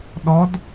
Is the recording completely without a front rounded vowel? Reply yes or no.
yes